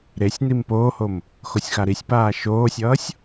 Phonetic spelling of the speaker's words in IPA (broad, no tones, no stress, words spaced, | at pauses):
ɾesʲnim poːhom | xosʲxaɾisʲpaː ʃoːsʲʌːsʲ